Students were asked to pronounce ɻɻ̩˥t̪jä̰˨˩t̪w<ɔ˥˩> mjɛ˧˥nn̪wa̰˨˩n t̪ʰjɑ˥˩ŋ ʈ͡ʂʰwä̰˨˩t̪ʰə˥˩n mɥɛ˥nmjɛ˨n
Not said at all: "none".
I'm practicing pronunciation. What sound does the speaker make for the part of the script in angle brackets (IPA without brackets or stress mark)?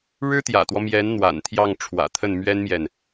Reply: ɔ˦